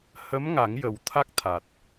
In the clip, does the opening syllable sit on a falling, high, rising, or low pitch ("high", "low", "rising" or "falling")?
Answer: rising